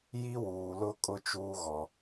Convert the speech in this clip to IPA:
j i˦ w uː˨ l ʊ˦ kʼ ʊ˦ t͡ʃ uː˦ ɣ ɔ˨

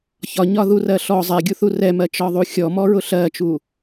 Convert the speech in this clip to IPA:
ç ɒ ɲ ɒ ð u r ɜ ɬ ɔ zˤ ɛ ɡʲ u θ u r ɛ m ɜ t͡ʃ ɒ ðˤ u xʲ ɔ m ɔ ɹ ʊ ɬ ɜ t͡ʃ u

